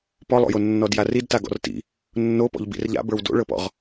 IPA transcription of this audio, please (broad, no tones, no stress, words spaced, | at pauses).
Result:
pɔlˠo̰jo nːɔdjarid taɡɔ̰rtḭ | nːopɔ̰ʎ bḭrʎa̰bə˞w do̰ɭɤpɔ̰ʁ